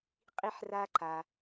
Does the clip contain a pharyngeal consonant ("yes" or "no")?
yes